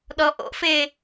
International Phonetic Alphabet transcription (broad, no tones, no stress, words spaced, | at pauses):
ɗɔʔo̰fe